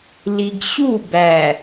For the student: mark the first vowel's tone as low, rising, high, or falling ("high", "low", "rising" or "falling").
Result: low